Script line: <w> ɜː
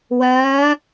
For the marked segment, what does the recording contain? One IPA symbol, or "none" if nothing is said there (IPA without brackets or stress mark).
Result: w